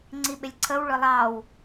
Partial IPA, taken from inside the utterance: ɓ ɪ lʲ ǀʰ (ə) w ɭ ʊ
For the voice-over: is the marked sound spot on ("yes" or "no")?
yes